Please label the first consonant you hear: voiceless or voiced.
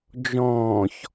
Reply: voiced